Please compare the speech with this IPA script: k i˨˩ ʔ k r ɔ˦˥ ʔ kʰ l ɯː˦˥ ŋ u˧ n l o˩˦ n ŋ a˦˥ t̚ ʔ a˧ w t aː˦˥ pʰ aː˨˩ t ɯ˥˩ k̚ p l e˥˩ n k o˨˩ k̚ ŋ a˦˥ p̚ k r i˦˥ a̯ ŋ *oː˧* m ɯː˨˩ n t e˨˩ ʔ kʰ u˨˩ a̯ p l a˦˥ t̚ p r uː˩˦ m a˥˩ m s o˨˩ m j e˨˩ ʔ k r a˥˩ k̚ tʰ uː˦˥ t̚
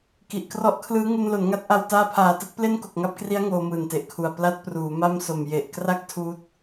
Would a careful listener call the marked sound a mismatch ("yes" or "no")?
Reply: no